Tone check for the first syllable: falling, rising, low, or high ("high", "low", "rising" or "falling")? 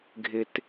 high